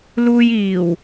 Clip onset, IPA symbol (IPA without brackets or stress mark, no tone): l